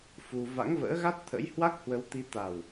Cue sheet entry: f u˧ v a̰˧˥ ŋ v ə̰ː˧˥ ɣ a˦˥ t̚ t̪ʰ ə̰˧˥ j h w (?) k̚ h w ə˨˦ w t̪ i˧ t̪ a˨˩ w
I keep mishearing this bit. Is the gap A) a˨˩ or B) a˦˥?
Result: B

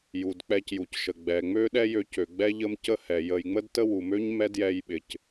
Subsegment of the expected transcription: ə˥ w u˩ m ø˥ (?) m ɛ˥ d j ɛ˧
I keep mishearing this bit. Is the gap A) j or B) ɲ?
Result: B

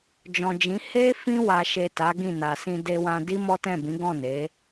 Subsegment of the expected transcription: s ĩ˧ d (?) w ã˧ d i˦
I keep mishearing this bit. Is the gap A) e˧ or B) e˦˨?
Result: A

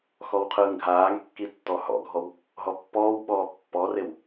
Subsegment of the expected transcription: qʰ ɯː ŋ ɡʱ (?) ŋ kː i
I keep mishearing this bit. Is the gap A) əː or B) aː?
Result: B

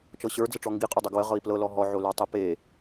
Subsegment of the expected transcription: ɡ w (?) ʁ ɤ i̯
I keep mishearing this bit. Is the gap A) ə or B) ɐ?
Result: A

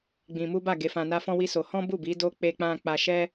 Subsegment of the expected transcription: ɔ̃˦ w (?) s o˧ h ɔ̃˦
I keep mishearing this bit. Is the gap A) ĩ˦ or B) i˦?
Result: B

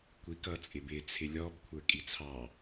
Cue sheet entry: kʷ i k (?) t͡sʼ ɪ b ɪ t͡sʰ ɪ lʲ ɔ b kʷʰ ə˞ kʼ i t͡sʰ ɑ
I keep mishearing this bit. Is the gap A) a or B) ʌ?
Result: B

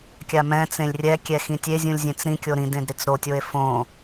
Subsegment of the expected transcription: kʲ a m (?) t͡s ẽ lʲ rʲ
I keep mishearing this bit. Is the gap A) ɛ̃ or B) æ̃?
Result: A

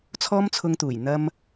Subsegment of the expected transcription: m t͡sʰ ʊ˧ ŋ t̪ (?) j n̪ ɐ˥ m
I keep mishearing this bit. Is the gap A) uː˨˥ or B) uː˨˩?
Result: B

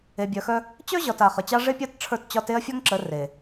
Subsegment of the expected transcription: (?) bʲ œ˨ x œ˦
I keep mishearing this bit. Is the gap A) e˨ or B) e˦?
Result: A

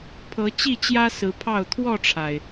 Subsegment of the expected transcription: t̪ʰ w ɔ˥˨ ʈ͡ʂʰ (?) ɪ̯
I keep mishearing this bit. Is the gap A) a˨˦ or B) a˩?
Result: B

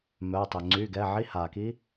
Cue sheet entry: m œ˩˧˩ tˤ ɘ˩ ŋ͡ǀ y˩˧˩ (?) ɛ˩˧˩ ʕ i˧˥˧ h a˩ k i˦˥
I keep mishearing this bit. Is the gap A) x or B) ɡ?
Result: B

